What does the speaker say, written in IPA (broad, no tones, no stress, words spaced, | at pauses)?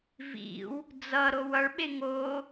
vḭw | d͡zʌɾow ʌɭɓe ŋo